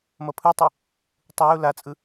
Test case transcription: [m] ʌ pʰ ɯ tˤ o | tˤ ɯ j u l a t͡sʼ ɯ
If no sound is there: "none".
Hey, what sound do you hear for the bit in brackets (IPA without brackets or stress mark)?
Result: m